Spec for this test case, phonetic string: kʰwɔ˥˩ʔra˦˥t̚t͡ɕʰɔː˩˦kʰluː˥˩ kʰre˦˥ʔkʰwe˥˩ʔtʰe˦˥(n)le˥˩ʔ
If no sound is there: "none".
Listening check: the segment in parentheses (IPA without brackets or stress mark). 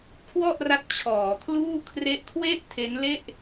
n